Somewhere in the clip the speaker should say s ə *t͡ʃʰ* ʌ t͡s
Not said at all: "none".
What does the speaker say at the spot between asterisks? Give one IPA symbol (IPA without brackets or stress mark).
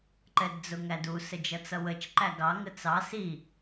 d͡ʒ